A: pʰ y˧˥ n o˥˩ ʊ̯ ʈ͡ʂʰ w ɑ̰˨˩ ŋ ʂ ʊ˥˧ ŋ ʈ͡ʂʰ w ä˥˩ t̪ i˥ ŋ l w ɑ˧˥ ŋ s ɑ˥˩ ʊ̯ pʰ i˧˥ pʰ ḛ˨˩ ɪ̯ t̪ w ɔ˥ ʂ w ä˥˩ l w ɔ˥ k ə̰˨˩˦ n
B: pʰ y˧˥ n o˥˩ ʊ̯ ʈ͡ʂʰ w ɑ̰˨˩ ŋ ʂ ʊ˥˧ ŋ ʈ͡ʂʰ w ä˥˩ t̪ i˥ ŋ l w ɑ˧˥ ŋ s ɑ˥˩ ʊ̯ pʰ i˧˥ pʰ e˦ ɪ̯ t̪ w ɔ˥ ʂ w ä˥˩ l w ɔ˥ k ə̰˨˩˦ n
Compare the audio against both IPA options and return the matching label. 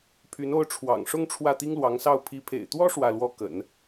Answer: A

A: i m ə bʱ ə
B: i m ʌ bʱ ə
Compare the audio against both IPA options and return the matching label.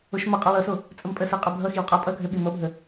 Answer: B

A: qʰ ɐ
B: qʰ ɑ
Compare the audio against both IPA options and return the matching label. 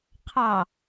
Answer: B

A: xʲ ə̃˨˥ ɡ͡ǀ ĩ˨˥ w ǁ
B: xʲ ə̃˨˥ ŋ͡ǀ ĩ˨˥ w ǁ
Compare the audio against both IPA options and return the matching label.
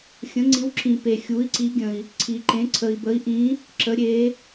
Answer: B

